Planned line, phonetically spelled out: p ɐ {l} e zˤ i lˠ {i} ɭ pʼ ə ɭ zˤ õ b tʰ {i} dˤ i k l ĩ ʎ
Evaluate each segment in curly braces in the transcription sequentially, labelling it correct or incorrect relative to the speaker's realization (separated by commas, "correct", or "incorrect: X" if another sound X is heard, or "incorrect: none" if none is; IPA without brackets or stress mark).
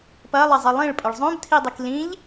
incorrect: lˠ, incorrect: ĩ, correct